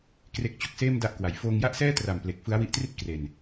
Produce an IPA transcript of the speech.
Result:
k r e˦˥ k̚ t͡ɕ o˦˥ k̚ s eː˥˩ m d a˦˥ ʔ k w a˩˦ j f oː˧ ŋ j a˥˩ ʔ s ɛː˥˩ t r a˨˩ m p l e˨˩ k̚ f ɯ˦˥ a̯ w i˦˥ ʔ t r i˥˩ t̚ k r e˨˩ n

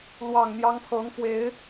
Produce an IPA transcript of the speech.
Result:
l w ɑ˨˩ ŋ n̪ j ɑ˧˥ ŋ pʰ ɤ˧˥ ŋ f w e˧˥ ɪ̯

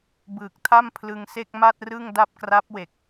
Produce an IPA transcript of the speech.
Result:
b ɯː˨˩ k̚ tʰ a˥˩ m pʰ l ɯ˧ ŋ s e˥˩ k̚ m a˥˩ t̚ r ɯ˥˩ ŋ d a˥˩ p̚ k r a˦˥ p̚ w e˨˩ k̚

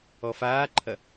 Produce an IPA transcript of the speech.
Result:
ɔ f aː ǃʰ ɐ

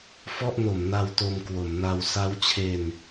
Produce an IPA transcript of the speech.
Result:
f ɔ˥˩ ʔ n o˩˦ m n a˧ w t o˧ m k w o˩˦ m n a˧ w s a˦˥ w t͡ɕʰ e˧ n

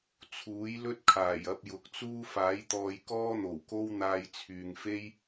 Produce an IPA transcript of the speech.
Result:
t͡sʰ uː˨˥ j l ɵ˥ t̚ kʰ aː˨˩ j ɐ˧ p̚ j ʊ˨ k̚ t͡s uː˥ f aː˨˥ j t̪ ɔː˧ j k ɔː˥ n̪ o˨˩ w k o˥ w n̪ aː˧ j t͡sʰ yː˨ ŋ f e˥ j

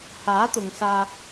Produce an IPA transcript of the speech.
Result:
h aː˨˥ t̪ ʊ˨ ŋ s aː˧

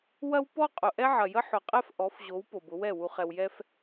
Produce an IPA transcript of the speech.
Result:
w ɐ˦ w p ɔ˦ qʼ ʊ˨ ʔ ɛ˦ ʕ ɐ˨ j ə˦ ħ ʊ˨ qʼ ɛ˦ f ʔ ɔ˨˦ f ʑ o˨˦ w p o˨ b ʊ˨˦ w ɛ˦˨ w u˨ χ ɛ˨ w j ɛ˦ f

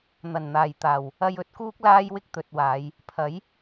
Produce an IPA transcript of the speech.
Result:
n̪ ɐ˨˩ n n̪ aː˨˩ j t̪ aː˨˩ w | ɐ˧ j ɵ˨˥ t̚ k uː˥ k̚ l aː˥ j w ɪ˥ k̚ t̪ ɵ˨ t̚ w aː˨˧ j | pʰ ɐ˨˥ j

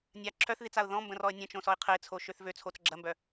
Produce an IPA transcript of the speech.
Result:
nʲ a ǁʰ œ θ ð i t͡s a ʊ̯ ð ɔ̃ m b ə̃ r ɔ ə̯ nʲ ə̃ t͡ʃ õ s ɔ ɪ̯ qʰ ə ɪ̯ t͡sʰ o ʃ ø θ v ø t͡sʰ o t͡s ɡ͡ǁ ɐ m b œ

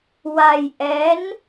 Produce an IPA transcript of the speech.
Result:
w a˧ j ʔ ɛ˧˥ n

